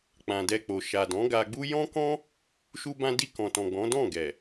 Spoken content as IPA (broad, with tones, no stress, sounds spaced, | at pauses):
k͡p ã˨ d ɛ˧ k͡p o˨ ʃ a˨ d ɔ̃˨˦ ɡ a˧ ɡ͡b u˦ j ɔ̃˦ k ɔ̃˦ | ʃ u˧ b ã˧ d i˧ k ɔ̃˨ t ɔ̃˨ ɡ͡b ɔ̃˨˦ d ɔ̃˦˨ ɡ ɛ˨